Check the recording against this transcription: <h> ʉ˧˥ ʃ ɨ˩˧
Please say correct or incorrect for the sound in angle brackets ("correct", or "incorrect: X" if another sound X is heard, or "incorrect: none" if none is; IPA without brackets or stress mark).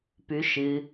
incorrect: p